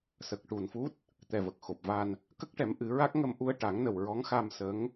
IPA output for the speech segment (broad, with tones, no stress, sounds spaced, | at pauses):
s ə˨˩ k̚ ʈ u˨˩ n f u˦˥ t̚ | t̪ ɛ˨˩ v ə˨˩ k̚ x o˨˩ p̚ v a˧ n | k ə˦˥ k̚ ʈ ɛ˨˩˦ m ʔ ɨ˨˩˦ ɹ a˦˥ k̚ ŋ ə˧ m ʔ u˧ ə̯ ʈ a˨˩˦ ŋ n ə˨˩ w ɹ ɔ˧˥ ŋ x a˧ m s ə˧˥ ŋ